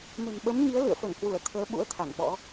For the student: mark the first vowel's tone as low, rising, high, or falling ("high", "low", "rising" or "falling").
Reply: low